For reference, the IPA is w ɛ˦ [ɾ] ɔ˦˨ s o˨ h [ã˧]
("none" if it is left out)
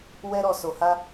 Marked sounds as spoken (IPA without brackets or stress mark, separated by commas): ɾ, a˧